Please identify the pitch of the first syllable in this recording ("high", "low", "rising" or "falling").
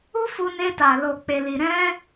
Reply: high